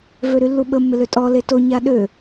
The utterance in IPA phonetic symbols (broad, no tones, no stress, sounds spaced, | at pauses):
v ø ɾ y lː u ɓ ə mː ɪ l ø tʼ ɔ l e t o ɲ a ɗ ø